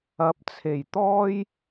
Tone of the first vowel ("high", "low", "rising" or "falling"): rising